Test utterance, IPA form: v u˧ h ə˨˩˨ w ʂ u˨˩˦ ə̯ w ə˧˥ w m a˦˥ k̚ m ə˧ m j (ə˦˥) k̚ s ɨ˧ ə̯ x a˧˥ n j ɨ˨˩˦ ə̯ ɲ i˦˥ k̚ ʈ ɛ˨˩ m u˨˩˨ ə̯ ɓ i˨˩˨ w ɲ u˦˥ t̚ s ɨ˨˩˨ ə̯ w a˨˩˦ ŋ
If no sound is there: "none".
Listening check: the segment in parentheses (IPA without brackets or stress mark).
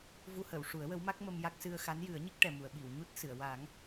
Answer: a˦˥